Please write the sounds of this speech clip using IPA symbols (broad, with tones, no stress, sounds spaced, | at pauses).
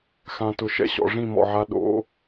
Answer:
x ã˨ t ʊ˨ ʃ ɛ̰˦ ɕ ɔ̰˨ ʐ ĩ˦˨ m ɔ̰˨ ʕ a˧ ɗ o̰˨˦